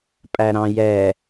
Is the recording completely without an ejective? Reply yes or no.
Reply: no